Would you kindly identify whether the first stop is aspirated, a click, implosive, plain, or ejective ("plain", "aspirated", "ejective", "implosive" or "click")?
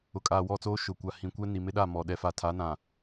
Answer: ejective